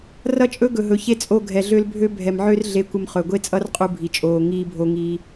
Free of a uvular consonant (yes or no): no